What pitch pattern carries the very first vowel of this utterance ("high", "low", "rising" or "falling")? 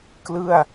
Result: falling